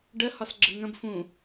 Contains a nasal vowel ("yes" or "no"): yes